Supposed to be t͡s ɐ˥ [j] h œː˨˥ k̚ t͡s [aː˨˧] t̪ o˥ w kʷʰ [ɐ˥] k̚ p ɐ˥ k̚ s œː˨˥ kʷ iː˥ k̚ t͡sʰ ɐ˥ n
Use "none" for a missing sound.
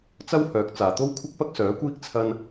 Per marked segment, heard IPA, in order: w, aː˨, ɐ˥

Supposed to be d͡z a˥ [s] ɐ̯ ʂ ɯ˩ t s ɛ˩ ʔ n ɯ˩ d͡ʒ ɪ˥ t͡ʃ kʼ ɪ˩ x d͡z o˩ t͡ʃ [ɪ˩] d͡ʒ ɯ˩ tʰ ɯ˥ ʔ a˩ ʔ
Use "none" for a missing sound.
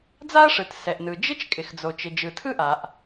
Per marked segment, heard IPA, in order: none, ɪ˩

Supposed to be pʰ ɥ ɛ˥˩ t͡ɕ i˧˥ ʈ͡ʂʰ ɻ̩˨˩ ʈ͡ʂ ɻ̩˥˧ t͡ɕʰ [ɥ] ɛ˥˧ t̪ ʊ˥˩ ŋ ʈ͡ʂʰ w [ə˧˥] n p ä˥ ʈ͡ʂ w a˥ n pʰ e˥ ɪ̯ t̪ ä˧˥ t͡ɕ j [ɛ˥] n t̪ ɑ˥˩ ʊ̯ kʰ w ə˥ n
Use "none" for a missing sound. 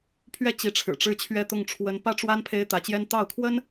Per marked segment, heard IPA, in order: ɥ, ə˧˥, ɛ˥

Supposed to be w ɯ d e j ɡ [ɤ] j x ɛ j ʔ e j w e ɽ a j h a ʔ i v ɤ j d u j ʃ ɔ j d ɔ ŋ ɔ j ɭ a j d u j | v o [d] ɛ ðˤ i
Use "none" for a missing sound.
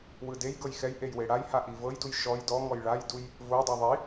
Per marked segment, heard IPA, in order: ɤ, dˤ

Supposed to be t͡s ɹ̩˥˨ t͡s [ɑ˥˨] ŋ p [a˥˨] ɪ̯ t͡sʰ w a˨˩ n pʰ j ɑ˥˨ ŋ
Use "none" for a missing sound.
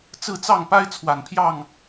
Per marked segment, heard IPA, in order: ɑ˥˨, a˦

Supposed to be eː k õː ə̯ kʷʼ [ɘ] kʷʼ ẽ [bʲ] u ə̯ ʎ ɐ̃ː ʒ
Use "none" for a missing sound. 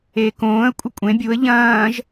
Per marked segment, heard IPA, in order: ɘ, bʲ

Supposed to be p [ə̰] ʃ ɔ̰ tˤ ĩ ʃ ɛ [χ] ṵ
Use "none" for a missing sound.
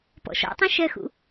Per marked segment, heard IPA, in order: ɔ̰, x

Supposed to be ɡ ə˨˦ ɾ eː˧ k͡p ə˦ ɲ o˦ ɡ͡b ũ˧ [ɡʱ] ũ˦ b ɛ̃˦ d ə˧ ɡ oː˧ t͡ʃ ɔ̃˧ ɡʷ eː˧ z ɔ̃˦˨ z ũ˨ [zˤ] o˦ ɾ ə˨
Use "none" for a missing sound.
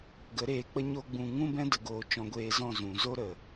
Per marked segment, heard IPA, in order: ŋ, z

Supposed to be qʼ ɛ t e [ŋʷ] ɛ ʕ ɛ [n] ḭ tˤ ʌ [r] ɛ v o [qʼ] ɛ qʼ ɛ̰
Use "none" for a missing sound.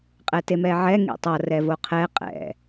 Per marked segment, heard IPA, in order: m, ŋ, r, qʰ

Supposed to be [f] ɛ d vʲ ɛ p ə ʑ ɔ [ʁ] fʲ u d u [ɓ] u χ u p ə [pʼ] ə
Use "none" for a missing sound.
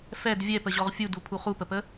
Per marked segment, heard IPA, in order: f, ʁ, pʰ, p

